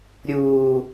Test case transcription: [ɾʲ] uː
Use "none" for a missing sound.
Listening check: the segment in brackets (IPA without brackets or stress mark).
ɾʲ